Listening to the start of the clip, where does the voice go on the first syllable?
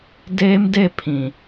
high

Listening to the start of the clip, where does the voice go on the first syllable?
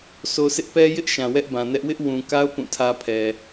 low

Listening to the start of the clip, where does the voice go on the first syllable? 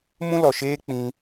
high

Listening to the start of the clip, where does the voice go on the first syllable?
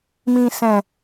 low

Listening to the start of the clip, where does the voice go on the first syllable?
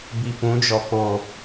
low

